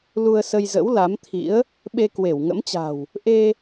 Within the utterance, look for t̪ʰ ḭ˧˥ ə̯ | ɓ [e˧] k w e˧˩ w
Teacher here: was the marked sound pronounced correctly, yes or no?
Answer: yes